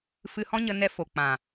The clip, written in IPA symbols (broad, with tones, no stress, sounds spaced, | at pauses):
f ɨ˧ h ɔ̃˦ ɲ ə˧ n ɛ˧ f o˨ k͡p ã˨